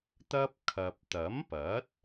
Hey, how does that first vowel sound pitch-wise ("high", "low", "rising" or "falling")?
high